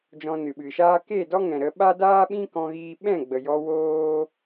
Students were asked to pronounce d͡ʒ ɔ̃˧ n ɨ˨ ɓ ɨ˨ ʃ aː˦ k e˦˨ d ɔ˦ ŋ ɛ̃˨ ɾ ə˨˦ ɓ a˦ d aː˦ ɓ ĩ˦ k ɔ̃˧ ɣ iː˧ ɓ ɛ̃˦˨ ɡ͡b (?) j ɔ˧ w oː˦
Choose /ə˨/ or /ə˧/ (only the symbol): ə˨